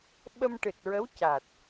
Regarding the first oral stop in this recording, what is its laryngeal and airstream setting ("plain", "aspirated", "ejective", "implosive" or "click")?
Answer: implosive